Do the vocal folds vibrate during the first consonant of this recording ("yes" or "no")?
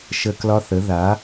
no